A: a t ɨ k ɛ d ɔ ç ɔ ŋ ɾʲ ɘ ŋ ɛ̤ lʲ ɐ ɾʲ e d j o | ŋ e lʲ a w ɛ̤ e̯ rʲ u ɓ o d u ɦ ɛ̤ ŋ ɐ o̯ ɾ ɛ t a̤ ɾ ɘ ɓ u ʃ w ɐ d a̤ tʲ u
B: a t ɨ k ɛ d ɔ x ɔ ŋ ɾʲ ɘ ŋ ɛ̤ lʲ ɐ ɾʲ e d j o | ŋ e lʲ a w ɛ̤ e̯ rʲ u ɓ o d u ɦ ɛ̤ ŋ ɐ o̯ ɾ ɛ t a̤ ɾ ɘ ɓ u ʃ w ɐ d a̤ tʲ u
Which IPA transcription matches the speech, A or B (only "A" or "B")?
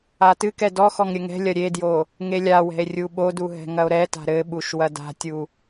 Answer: B